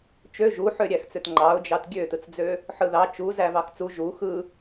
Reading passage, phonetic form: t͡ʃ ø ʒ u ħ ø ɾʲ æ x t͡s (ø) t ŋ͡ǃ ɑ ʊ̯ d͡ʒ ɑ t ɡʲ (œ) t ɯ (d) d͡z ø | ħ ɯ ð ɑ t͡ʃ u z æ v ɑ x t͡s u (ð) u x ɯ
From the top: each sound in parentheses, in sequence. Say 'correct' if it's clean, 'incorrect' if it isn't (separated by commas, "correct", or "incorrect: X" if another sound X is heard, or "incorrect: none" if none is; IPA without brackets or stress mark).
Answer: correct, incorrect: ø, incorrect: t͡s, incorrect: ʒ